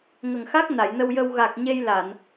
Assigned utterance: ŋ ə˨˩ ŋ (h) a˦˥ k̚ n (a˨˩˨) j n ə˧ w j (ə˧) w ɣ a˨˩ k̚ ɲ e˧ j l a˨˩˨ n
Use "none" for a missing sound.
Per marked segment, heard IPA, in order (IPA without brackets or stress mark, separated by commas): x, a˨˩˨, ə˧